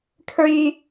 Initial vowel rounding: rounded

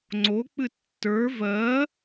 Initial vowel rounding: rounded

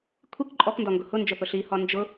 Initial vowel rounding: unrounded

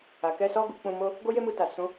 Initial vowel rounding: unrounded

